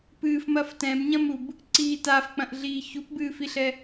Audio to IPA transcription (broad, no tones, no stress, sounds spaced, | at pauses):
p ɨː f m ɐ f t ɛ̃ b ɲ ɐ̃ m u b | ǀ iː t a f k͡p ɐ̃ ʔ ɮ iː ç u p b ɨː f i ɬ ɛ